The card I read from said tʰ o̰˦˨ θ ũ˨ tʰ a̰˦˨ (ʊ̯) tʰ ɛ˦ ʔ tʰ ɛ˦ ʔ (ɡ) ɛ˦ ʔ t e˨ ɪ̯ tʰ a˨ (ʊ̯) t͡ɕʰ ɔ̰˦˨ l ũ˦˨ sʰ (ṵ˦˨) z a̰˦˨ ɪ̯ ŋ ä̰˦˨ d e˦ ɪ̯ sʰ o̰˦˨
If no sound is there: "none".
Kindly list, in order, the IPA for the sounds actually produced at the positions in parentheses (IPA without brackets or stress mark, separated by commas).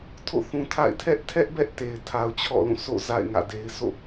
ɪ̯, b, ʊ̯, o̰˦˨